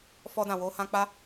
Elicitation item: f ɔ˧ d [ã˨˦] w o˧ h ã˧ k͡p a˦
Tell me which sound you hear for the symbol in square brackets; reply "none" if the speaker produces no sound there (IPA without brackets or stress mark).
ã˨